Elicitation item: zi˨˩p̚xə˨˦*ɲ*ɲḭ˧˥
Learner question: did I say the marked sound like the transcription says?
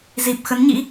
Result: no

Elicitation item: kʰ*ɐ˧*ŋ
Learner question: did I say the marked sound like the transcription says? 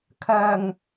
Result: no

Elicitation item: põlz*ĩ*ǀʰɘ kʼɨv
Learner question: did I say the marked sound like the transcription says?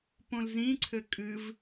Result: yes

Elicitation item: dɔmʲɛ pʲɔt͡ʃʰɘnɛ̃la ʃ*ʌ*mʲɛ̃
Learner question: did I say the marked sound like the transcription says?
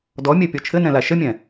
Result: no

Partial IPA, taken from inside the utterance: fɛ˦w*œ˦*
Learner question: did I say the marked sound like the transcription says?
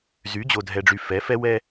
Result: no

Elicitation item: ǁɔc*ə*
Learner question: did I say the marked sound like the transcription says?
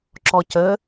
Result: yes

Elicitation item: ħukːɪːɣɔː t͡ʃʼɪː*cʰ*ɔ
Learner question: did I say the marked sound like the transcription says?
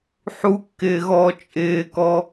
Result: no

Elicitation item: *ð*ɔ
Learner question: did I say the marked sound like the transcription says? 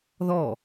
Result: yes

